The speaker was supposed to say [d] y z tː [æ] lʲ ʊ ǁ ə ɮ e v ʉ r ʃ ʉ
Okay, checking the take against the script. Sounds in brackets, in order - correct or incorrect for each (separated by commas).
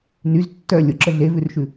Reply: incorrect, incorrect